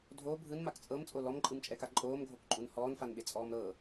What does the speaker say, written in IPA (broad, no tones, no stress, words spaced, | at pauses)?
dʱo bʱɯnmak t͡sʼɤmt͡sʼo lɔmǃʼɯmt͡ʃʼɛka ǃʼoːmɡʱokǃʼun hɔːnfanɓet͡sʼɔːm ɾɤ